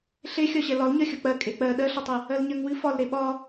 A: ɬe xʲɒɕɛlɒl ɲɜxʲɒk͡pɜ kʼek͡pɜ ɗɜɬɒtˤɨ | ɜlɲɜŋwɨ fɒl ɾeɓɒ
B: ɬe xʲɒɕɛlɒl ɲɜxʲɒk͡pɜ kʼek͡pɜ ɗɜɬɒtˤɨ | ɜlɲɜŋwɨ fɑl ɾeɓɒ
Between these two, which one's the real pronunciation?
A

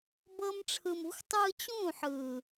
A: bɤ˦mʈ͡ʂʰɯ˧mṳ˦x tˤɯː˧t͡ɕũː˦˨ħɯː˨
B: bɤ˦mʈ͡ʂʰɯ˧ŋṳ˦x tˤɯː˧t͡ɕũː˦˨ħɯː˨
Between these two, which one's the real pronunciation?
A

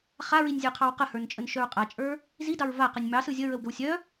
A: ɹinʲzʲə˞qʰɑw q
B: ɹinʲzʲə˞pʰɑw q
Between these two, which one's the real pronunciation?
A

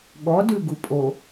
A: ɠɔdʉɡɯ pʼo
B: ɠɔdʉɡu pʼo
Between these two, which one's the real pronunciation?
B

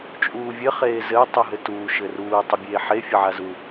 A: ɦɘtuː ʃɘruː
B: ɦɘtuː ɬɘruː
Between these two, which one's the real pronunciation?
A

